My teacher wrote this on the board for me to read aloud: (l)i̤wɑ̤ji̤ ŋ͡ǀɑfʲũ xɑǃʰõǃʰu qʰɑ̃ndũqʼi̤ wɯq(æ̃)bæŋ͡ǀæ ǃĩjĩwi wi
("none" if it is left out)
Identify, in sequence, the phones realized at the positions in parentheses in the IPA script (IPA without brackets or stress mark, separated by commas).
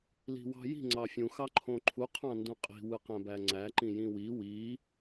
l, æ̃